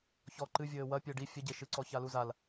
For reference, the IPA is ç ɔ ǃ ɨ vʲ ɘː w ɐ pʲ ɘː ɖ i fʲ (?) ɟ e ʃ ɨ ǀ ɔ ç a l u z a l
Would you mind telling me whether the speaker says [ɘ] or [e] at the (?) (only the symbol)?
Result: ɘ